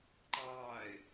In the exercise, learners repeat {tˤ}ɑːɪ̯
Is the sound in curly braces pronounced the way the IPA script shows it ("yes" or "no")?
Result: no